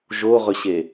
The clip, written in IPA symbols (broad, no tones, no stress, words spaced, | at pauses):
ʒoʁɵɕe